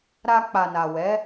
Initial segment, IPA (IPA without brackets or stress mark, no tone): ɾ